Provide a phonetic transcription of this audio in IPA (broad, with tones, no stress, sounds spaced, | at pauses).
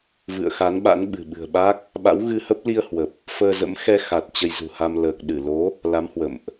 v ɨ̰˧˨ ə̯ x a˨˦ n ɓ a̰˧˥ n ɓ ɨ̤˨˩ ɓ ɨ̤˨˩ ə̯ ɓ a˦˥ k̚ | ɓ a̰˧˥ w ɣ ɨ˧ h ə˦˥ p̚ l i˧ ə̯ h w ə˨˩ p̚ | f əː˧ z ə̰˧˥ m x ɛ˧ x a˨˩ t̚ t͡ɕ ə˧ j z ṳ˨˩ h a˧ m l əː˨˩ k̚ ɗ ɨ˧˩ l o˨˦ | l a˨˦ m h w ə̰˧˨ m ʔ